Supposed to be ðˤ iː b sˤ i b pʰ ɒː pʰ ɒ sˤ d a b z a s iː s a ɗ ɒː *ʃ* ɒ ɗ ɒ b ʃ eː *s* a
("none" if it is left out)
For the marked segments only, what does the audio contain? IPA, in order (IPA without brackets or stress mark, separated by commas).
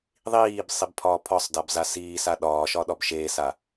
ʃ, s